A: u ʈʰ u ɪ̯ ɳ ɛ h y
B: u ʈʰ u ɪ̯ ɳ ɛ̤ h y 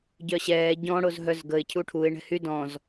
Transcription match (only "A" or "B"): B